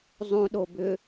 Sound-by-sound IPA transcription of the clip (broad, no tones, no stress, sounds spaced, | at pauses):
zˤ ũ ɗ o b ʏ